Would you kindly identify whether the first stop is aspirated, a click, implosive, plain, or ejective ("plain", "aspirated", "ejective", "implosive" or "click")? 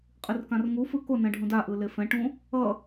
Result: ejective